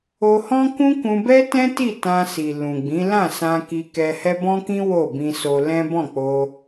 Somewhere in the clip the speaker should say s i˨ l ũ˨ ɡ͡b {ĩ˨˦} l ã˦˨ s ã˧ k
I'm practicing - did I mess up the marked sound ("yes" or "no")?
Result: no